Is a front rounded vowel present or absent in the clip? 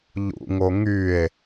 present